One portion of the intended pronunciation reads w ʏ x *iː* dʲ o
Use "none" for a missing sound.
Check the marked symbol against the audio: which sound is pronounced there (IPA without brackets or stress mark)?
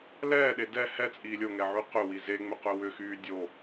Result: yː